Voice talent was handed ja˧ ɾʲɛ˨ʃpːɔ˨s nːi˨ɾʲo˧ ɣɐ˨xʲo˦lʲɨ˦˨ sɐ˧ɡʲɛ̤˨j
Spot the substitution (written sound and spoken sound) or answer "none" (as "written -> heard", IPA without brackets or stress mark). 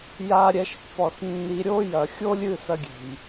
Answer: ɣ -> j